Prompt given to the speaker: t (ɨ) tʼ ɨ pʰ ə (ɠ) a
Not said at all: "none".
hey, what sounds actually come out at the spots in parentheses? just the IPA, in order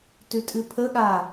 ʉ, ɠ

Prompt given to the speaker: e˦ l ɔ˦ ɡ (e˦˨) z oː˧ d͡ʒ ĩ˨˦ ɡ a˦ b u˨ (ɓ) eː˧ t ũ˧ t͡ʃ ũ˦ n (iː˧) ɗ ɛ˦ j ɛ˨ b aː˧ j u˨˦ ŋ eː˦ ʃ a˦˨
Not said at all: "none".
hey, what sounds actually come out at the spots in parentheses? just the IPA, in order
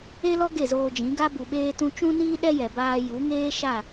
e˦˨, ɓ, iː˦

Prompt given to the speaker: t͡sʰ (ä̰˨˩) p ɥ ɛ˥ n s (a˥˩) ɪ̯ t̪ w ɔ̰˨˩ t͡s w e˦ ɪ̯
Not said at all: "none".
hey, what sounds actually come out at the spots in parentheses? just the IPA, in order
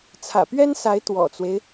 ä̰˨˩, a˧˥

